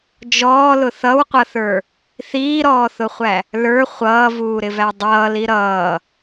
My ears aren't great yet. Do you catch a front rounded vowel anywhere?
no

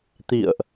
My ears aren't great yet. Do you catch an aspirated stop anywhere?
no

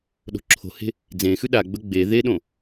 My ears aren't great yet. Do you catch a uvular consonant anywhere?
no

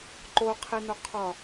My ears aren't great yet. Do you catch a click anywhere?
yes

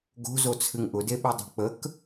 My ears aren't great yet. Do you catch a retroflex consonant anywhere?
no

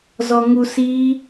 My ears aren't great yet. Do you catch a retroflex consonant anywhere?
no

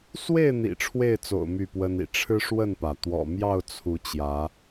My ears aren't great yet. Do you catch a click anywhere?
no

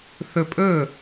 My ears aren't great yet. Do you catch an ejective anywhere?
yes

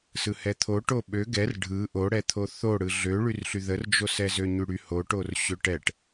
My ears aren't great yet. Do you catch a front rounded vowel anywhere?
yes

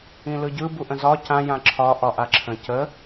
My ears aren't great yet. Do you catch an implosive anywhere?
no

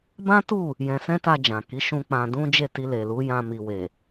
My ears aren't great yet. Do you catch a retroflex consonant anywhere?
no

